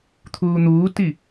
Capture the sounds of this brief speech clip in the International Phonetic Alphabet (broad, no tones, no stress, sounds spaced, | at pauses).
t̪ʰ uː n̪ uː t i